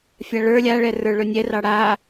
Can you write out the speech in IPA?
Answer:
fʲ a ɭ ə˞ lʲ a ɭ ɛ r ə˞ ɭ ɵ nʲ ɛ r ɑ ɽ a

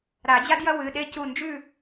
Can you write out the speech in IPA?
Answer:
ɾ a˨˩˦ d͡ʑ a˥ d j ɐ˥ w ɨ˩˧˩ ɗ e˥ c u˧˩ n d͡ʒ ʉ˥˨

